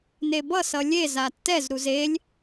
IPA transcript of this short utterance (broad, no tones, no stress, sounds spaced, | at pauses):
n e b ʌ s ʌ lʲ e z a tː ɛ z ɾ u z e lʲ